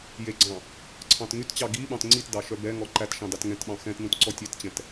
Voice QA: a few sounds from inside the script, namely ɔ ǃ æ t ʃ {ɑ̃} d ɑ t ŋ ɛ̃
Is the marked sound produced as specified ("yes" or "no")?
yes